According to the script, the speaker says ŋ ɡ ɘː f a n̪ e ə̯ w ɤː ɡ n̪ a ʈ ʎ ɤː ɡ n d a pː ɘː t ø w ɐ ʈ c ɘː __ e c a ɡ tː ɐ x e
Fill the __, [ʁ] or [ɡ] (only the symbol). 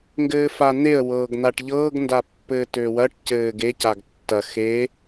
ɡ